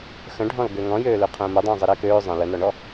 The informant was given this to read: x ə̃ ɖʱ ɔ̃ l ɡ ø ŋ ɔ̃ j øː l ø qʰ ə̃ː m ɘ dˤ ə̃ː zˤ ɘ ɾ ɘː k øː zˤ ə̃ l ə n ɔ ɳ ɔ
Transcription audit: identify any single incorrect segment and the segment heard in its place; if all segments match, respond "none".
none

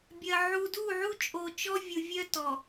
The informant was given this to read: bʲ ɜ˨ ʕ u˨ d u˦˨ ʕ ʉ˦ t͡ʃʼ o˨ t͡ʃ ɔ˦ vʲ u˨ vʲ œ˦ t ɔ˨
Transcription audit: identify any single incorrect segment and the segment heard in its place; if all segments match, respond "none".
ʉ˦ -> u˦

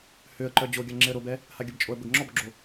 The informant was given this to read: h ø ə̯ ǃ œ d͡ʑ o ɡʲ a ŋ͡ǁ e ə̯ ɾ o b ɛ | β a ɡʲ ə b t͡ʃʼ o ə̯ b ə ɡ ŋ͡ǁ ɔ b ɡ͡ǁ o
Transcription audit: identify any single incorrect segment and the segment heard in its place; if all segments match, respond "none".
β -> h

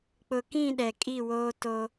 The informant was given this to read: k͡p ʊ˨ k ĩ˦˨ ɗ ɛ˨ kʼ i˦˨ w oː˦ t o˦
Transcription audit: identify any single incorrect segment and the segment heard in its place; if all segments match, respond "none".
none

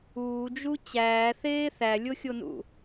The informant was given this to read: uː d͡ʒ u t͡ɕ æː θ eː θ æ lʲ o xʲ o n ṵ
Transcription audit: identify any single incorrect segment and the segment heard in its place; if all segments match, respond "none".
none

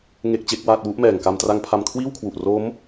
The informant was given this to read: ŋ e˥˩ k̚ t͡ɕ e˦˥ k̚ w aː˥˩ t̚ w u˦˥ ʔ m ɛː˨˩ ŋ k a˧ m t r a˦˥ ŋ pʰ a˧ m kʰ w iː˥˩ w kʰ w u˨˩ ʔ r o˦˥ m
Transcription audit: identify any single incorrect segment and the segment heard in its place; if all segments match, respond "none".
none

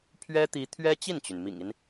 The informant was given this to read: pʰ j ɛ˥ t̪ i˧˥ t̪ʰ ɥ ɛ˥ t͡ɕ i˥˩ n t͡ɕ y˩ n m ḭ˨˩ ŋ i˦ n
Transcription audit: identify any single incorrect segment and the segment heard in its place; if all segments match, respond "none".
j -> ɥ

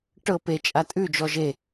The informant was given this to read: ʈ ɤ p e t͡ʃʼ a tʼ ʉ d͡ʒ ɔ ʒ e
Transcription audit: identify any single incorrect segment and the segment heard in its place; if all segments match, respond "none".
none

